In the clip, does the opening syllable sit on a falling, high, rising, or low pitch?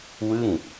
falling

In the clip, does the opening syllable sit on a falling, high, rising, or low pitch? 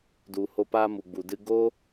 low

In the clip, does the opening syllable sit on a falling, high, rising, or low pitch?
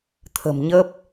low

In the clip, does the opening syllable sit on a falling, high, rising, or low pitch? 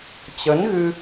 rising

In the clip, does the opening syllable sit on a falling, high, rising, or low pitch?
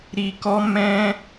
low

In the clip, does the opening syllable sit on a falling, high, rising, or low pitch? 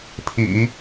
low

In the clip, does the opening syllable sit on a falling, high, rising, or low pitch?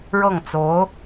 falling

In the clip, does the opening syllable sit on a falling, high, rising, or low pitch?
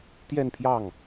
falling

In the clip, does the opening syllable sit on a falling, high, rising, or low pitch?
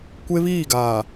high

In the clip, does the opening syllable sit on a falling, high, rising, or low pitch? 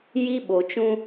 high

